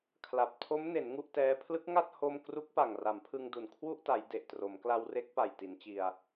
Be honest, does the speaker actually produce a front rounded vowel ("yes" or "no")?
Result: no